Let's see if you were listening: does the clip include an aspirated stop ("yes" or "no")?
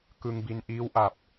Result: no